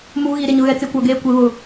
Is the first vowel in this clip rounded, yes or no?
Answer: yes